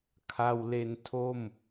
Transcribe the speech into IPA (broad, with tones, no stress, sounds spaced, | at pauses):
kʰ a˧ w l e˧ n tʰ o˥˩ m